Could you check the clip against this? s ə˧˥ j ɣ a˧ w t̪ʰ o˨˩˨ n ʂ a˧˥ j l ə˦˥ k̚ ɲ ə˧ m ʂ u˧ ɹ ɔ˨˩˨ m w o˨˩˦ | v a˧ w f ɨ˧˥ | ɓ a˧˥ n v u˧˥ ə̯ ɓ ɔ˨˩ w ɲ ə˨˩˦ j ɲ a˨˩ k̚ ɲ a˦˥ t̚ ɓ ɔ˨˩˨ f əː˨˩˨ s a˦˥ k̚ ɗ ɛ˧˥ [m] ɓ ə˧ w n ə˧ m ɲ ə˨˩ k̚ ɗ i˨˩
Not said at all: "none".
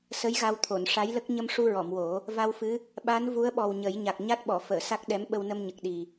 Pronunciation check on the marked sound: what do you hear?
m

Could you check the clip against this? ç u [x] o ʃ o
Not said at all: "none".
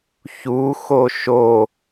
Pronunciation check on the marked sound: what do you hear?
x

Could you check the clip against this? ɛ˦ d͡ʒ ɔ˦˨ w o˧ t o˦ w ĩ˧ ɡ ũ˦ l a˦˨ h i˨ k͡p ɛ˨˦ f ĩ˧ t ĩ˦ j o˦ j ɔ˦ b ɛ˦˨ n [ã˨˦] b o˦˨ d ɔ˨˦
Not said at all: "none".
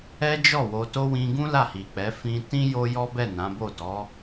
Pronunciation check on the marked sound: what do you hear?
ã˨˦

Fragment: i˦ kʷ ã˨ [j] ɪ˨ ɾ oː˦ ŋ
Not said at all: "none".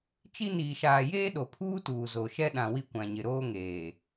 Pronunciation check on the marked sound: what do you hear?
ɲ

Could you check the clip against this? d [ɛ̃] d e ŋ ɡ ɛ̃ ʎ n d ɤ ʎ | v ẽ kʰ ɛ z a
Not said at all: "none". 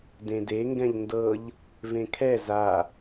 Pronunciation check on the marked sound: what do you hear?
ẽ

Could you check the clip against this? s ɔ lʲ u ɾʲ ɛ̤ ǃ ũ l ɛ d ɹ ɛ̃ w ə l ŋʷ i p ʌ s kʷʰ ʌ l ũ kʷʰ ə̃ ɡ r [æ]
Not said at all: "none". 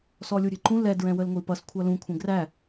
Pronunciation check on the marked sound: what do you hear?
æ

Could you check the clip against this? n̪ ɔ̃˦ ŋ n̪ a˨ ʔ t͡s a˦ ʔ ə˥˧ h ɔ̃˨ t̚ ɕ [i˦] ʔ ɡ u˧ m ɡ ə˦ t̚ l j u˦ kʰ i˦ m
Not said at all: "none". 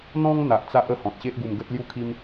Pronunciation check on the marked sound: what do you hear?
e˦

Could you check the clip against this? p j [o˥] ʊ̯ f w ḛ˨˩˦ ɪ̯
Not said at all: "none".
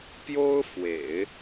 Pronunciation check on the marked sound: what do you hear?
o˥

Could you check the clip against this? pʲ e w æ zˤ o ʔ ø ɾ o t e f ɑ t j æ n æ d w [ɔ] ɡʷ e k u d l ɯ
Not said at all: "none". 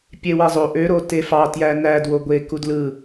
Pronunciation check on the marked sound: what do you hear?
o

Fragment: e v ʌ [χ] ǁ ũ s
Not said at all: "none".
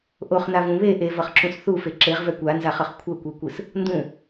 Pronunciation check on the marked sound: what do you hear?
χ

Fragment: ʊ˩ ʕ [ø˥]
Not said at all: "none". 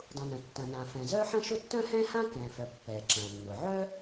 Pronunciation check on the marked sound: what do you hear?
œ˥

